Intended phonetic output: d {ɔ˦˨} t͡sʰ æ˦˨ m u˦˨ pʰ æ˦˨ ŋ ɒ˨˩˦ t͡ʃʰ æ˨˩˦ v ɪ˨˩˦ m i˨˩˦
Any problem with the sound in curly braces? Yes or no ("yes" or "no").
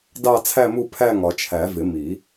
yes